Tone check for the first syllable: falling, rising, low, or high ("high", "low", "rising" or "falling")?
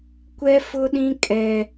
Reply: high